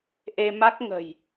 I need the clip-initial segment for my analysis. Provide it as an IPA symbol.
ʔ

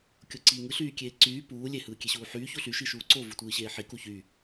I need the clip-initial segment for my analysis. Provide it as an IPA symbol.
kʲ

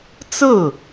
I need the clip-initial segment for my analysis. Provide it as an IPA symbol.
t͡s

